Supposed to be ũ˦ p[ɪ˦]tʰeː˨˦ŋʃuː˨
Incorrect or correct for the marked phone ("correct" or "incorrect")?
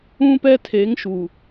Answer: incorrect